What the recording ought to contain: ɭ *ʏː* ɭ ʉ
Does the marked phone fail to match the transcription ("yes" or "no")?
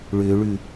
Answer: no